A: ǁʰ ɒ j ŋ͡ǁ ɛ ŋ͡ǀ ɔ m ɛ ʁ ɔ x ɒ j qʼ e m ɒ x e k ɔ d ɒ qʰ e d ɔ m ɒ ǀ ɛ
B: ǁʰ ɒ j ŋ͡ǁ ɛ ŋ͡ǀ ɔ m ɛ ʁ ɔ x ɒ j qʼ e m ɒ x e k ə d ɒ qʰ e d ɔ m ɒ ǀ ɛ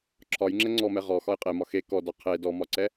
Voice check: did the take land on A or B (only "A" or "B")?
A